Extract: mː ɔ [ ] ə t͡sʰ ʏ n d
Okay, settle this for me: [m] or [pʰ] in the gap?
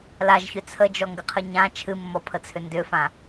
pʰ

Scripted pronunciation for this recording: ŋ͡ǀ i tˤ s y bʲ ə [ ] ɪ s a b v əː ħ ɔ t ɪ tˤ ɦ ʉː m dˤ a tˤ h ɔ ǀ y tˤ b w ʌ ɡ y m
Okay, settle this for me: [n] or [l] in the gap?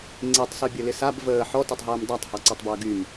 l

